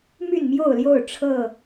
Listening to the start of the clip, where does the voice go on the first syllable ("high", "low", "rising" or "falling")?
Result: falling